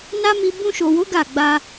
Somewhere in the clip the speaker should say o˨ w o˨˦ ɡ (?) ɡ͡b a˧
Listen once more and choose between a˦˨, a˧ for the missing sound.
a˦˨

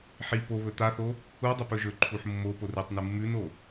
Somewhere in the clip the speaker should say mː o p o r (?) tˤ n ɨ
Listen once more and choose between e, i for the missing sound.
i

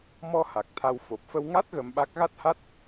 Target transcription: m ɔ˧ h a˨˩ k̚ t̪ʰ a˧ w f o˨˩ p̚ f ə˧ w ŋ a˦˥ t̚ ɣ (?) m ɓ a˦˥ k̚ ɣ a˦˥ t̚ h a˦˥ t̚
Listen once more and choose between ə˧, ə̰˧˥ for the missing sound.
ə˧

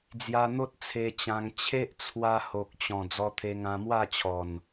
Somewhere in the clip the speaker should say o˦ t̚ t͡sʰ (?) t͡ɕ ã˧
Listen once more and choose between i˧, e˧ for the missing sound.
e˧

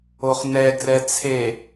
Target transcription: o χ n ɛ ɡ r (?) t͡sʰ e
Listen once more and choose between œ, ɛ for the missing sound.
ɛ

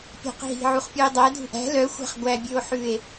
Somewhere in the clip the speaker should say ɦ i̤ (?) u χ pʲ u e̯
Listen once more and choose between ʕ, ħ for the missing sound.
ʕ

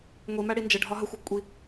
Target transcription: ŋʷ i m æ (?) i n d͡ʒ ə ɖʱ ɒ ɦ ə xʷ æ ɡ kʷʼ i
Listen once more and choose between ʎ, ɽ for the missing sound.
ɽ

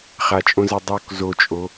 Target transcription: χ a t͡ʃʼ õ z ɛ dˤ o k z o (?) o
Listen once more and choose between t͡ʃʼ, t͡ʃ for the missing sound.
t͡ʃʼ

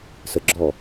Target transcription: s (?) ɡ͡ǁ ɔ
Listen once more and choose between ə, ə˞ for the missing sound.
ə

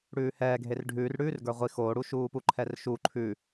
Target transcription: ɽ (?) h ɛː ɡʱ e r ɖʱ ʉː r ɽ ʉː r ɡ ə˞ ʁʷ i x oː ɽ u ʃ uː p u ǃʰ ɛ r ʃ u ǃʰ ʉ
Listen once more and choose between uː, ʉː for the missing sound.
ʉː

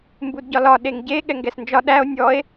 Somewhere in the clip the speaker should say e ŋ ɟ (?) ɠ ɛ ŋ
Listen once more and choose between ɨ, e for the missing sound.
e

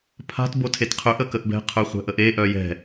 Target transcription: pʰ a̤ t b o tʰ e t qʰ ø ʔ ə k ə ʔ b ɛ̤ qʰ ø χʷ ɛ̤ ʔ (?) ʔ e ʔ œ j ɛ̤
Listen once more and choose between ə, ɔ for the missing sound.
ə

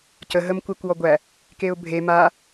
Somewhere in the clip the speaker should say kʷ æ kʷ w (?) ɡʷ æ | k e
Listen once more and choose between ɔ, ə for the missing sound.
ɔ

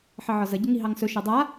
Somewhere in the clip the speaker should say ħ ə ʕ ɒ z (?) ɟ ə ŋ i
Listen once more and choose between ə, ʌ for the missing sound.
ə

